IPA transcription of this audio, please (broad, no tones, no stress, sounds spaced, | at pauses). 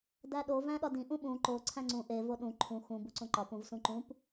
d æ ɗ o v æ̃ ɗ ɒ d ĩ ʔ ũ ɓ ũ ǃ o ǀʰ æ̃ ŋ͡ǀ ũ ʔ e v o ɗ ũ ǃʰ ũ x ũ b u ǀ õ ǃ ɒ p ũ v s ũ ǃ ũ p